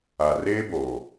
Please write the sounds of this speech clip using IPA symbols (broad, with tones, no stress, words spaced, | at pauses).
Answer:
a˨reː˦boː˨